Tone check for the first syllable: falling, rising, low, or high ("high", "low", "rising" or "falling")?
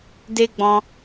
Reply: high